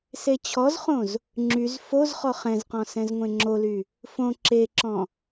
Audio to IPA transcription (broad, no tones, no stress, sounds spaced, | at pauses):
s e t͡ɕʰ ɔ z χ õ z | ŋ͡ǁ y z f o z χ ɔ χ ɛ̃ z q ɔ̃ s ɛ̃ z ŋʷ ẽ ŋ͡ǁ o l y | f õ ǁ e ǁ ɔ̃